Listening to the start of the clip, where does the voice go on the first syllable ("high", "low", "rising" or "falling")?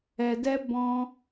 low